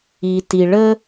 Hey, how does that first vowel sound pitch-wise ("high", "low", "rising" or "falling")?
low